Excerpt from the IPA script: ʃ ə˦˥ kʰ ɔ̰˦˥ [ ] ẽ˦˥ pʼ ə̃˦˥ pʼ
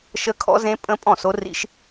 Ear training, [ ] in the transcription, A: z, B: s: A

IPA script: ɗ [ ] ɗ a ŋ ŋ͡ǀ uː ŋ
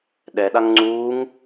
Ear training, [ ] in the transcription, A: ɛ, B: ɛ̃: A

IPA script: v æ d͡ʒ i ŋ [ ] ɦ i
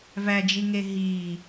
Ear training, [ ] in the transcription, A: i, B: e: B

